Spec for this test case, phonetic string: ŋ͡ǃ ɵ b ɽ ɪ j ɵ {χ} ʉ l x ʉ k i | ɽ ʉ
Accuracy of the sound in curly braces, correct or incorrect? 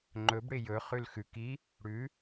correct